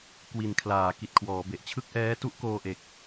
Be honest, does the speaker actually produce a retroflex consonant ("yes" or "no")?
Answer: no